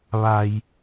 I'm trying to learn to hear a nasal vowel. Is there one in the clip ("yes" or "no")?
no